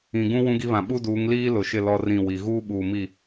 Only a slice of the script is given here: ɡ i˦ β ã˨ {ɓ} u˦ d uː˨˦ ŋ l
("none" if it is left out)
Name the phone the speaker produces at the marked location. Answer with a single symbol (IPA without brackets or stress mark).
ɓ